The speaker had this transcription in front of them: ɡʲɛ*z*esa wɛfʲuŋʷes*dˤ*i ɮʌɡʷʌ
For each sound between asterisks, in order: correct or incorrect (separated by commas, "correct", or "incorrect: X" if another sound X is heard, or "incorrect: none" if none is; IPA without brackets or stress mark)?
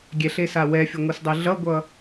incorrect: ɬ, correct